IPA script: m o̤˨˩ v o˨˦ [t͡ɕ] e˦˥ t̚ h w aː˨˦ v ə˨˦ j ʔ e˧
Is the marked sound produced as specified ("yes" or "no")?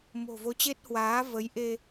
yes